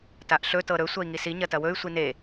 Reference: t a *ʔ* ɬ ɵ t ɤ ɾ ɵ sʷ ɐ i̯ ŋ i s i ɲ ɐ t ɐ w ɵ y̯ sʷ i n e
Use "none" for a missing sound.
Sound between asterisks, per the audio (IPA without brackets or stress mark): ʔ